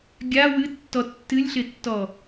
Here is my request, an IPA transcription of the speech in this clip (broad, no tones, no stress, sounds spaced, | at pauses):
ɡʲ a w ɨ tː ɔ tː ɨ lʲ ɬ ɪ tː ɔ